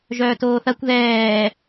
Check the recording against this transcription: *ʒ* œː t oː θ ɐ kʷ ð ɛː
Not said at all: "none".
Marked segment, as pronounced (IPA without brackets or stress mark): ʒ